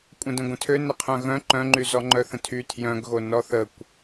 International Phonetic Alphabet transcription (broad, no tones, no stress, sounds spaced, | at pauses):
kʷʼ ə̃ d ə̃ ɡʷ ə̃ tʰ ø n ə qʰ œ̃ ɣ œ̃ ǃ œ̃ ŋ͡ǃ y z ɔ ŋ͡ǃ œ θ ə̃ tʰ y tʰ j œ̃ ɡ ɣ o n ɔ θ ə kʷ